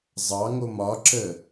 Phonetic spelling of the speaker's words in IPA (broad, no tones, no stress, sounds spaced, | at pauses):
zˤ ɑ ŋ o m ɒ ǁ əː